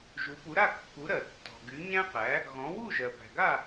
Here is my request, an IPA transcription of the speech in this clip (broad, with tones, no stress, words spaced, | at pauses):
ʒu˩˥pu˩˥ɾa˥˩ kːu˩˥ɾɜ˩ tːɔ̤˩ɡy˩˥ ɲæ̃˥qæ˩˥ | ɣɔ̃˩˥ wu˥˩ʒɜ˩ pæ̤˩ɡa˥˩